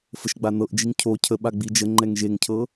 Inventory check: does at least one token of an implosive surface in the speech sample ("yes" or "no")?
yes